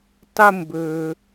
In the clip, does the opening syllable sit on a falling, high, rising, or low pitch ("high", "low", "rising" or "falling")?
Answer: high